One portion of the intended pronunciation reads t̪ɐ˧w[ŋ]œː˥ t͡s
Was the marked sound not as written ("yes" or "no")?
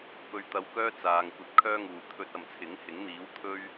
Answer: yes